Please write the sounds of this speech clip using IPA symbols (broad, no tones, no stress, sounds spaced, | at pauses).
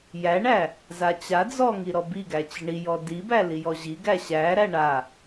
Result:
j æ ɳ æ | z a t͡ɕ a d͡z ɔ ŋ i ɾ ɔ b i ɡ æ t͡ɕ ɪ ɳ i j ɔ d i b æ l i j ɔ ʑ i ɡ æ ɕ æ ɾ æ ɳ a